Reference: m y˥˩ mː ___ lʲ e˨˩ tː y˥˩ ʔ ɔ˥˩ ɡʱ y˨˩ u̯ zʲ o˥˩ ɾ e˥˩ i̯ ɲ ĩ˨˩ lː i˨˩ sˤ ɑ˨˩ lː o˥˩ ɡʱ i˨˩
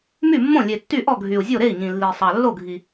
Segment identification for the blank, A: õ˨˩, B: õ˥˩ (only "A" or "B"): B